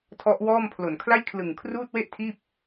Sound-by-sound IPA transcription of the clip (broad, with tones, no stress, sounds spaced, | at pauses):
tʰ ɔ˦˥ ʔ w ɔː˥˩ m pʰ l o˨˩ n kʰ l a˥˩ j kʰ l ɯ˨˩ ŋ kʰ r uː˥˩ t̚ w e˥˩ ʔ tʰ iː˥˩ p̚